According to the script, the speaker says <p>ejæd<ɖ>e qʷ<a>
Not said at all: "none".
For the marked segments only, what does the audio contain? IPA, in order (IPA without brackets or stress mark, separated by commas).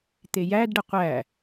t̪, ɖ, æ